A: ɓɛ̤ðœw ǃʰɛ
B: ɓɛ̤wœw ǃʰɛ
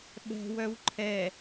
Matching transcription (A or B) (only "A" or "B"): B